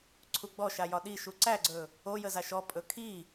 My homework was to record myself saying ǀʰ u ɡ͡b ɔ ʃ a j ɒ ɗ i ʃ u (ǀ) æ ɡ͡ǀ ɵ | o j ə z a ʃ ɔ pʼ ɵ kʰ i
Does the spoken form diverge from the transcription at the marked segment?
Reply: no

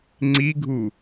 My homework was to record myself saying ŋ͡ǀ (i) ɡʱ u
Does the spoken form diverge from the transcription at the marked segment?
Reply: no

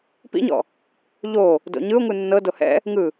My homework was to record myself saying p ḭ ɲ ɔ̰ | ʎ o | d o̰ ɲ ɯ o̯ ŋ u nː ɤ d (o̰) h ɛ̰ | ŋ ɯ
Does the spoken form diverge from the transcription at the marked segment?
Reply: yes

